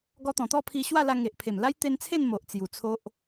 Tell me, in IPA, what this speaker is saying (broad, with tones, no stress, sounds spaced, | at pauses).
ɡ ɔ˧ t̪ ɔ̃˨˩ t̪ ɔ˥˧ pʰ i˧ ɕ w a˥˧ l a˧ ŋ e˨ ʔ pʰ e˨˩ m l a˦ j t̪ e˧ n t͡sʰ e˥˧ n m o˨ ʔ t͡s j u˨˩ t͡sʰ o˦ ʔ